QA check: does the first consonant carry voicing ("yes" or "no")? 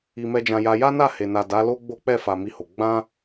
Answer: yes